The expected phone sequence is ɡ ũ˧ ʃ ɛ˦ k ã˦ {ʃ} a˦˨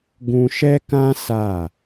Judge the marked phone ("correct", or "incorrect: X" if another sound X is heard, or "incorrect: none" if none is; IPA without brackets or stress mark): incorrect: s